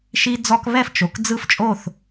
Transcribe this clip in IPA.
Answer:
ʃ i˦ d͡z ɔ˦ k β ɛ˥˨ f t͡ʃ o˩˧˩ k d͡z ɯ˦ f t͡ʃʼ o˥˨ θ

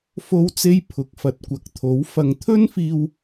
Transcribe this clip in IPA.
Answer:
f o˥ w t͡s e˥ j pʰ ʊ˨˥ k̚ f ɐ˨ t̚ kʷ ɐ˨ k̚ t̪ʰ o˨˥ w f ɐ˧ ŋ t̪ʰ ɵ˥ n f iː˧ w

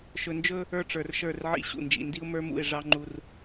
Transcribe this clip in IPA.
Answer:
ʃ ɵ˨ n d͡ʒ ɵ˦ | ə˞˦ ʈ͡ʂ ə˞˨ r ʃ ə˞˦˨ r ʕ ḭ˦ ɕ ṵ˨ n d͡ʒ ḭ˨ n d i˦ ʊ̯ m ə˞˦ m ṵ˦˨ ɪ̯ ʐ ɑ˦ ŋ͡ǃ u˦ r

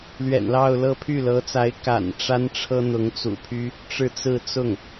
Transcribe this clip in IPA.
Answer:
l ɥ ɛ̰˨˩ n l ɑ˥˧ ʊ̯ l ɤ˥˧ pʰ y˥˩ l ɤ˧˥ t͡s a˧˥ ɪ̯ k a̰˨˩ n ʈ͡ʂ a˥ n ʈ͡ʂʰ ɤ˥ n̪ ʊ˧˥ ŋ t͡s ṵ˨˩ pʰ y˥ | ʈ͡ʂ ɻ̩˥˧ t͡s ɹ̩˥˧ t͡s ʊ˥˩ ŋ

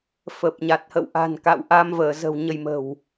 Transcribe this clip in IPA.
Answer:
f ə˨˩ p̚ ɲ a˨˩ t̚ h ə̰˧˨ w ʔ a̤˨˩ n k a̰˧˨ w ʔ a˨˦ m v əː˧˩ z ə̤˨˩ w ɲ ə˧ j m ə̤˨˩ w

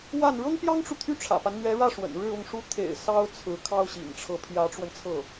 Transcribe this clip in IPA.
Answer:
w a˥˩ n ɻ ɤ˥ ŋ p j ɑ˥ ŋ ʈ͡ʂ u˨ t̪ʰ y˥˩ ʈ͡ʂʰ ä̰˨˩ p a˦ n n̪ ɥ ɛ˧˥ ɻ ä˥˩ ʂ w ə̰˨˩ n ɻ ɻ̩˥˧ ʊ˥˩ ŋ ʂ u˥ t̪ʰ ḛ˨˩ ɪ̯ s ɑ˥ ʊ̯ t͡sʰ ɹ̩˧˥ kʰ ɑ˥ ʊ̯ ɕ ḭ˨˩ ŋ ʈ͡ʂʰ ɤ˧˥ pʰ j ä˧˥ ʈ͡ʂ w ə˧ n t͡sʰ ɤ˥˩

